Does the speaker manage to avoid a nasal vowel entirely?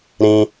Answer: no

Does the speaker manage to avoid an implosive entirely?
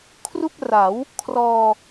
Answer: yes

